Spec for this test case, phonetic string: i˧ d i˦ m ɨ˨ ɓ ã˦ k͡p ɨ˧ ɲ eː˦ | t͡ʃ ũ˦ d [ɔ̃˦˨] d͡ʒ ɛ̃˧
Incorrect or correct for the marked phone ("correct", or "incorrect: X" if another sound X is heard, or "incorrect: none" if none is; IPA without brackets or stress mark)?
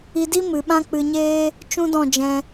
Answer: correct